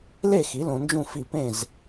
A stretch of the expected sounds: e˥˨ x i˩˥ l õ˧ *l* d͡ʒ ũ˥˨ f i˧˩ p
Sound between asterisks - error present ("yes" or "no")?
yes